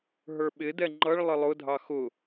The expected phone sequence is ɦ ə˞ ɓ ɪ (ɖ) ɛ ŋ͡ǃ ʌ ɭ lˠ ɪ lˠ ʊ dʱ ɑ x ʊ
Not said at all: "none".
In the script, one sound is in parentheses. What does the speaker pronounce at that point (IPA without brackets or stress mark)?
d